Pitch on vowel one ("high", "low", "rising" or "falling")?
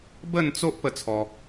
falling